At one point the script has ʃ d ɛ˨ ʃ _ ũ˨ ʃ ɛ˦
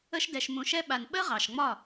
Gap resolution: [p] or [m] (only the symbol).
m